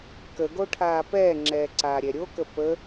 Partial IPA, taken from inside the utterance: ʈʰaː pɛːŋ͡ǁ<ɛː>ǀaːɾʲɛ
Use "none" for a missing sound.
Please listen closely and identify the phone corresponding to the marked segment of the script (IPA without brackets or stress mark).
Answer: ɛː